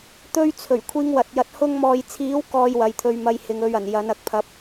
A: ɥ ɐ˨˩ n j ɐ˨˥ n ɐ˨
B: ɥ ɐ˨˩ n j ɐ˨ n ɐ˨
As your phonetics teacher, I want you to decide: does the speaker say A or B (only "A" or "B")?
A